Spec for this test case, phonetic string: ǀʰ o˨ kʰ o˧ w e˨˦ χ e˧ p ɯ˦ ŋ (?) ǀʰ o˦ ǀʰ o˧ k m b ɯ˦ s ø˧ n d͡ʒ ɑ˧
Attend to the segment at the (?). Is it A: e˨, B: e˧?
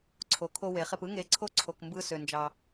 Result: B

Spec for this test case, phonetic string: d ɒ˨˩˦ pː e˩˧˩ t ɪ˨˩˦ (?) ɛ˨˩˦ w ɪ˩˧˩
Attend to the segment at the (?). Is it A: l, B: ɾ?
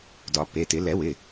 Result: A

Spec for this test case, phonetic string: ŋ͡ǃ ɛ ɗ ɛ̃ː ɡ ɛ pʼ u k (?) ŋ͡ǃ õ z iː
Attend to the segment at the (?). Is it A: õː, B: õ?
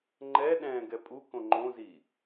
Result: B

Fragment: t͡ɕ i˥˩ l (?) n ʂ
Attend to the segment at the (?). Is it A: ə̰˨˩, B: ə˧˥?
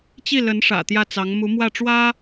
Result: B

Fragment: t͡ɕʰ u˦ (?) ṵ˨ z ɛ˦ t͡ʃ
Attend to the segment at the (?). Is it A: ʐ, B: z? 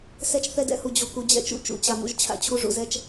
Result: A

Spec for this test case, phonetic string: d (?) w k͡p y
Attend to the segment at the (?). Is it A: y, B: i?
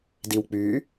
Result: B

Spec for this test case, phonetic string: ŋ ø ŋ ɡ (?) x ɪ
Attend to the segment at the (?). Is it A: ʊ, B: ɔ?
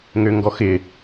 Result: B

